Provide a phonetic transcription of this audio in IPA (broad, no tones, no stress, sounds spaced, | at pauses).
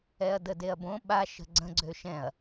ɛ ɐ̯ d ə d e ɐ̯ b õ ɓ a ʃ ə̤ ɡ͡ǀ ə̃ ɡ͡ǀ ø ʃ ɛ̃ ɐ̯